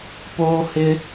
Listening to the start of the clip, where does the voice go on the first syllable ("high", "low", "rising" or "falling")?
high